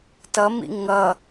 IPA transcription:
t ʌ m ḭ ŋ ʌ

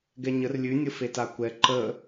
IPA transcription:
ɡ ɛ ɲ ə r lʲ ʉ nʲ ə f e t a kʷ ɛ ǃ ə

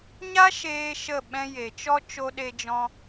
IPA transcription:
ɲ a˦ ʃ eː˦ ʃ ə˦˨ ɓ ɛ̃˧ j e˨ t͡ʃ ɔ˦ t͡ʃ o˧ ɗ e˧ d͡ʒ ɔ̃˧

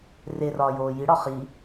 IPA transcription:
r e r ɒː j oː j i ɽ ɒ χ i

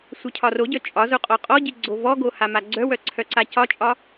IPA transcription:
sʷ œ cʰ ɒ r o ɟ œ t͡ʃʼ ɒ z o qʼ ɔ qʼ ɔ ɟ i ɡ͡ǀ o v ɔ ɡ o h a m a ɡ͡ǀ œ w œ ǀʰ œ ǀ a c ɒ t͡ʃʼ ɒ

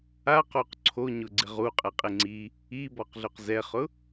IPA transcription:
a q o q ǀʰ o ɲ ʊ ɡ͡ǀ ɪ ʁ u qʼ ɛ qʼ e ŋ͡ǀ i | i b ɔ q ɮ ʊ q z ɛ χ ʊ

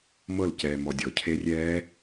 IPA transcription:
m ɤ l c ɛː m ɔ dʲ ɔ cʰ e rʲ ɛː

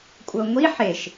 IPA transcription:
kʷʼ ɤ ŋʷ i ħ e ʃ

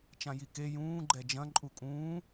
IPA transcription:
t͡ʃ ã j i k e j ũː ɡ͡ǃ ɛ d͡ʒ ɐ̃ ǃʼ u kʼ ũː

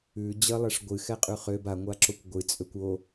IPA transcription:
ʉ d͡ʑ ə lˠ ɛ ʂ ɡʷ ɨ x ɛ qʼ ʉ χ ø b a ŋʷ a ǁ o kʷ ɡʷ ɨ t͡sʼ ø kʷ o

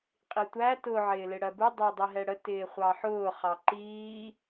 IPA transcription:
qʼ i tʷ æ t ʊ ʕ ɪː l ɪ ɽ ɜ b u dˤ ɪː dˤ i ɦ ɛ ɽ ə t ɪː χʷ ɑ ħ ʊː χ ɑ ǃ iː

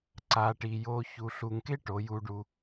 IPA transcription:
ǀ a˨ ʈ i˨ j o˧ ç u˨ ɬ u˨ ŋ k e˦ ʈ o˨˦ j u˧ ɖ u˧

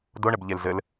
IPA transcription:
d o ɳ ɘ b ʎ e l z ɘ l

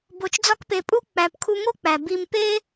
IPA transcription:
b o˧ t͡ʃ d͡z ɒ˥ k p e˧ pʼ u˥ k͡p æ˧ p kʰ u˥ ŋ o˥ k͡p æ˩ b i˧ m p e˥

